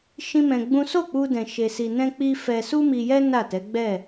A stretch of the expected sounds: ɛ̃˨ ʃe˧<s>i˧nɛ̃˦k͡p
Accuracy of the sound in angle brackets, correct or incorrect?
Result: correct